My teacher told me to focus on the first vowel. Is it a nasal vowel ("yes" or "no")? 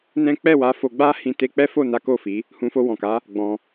yes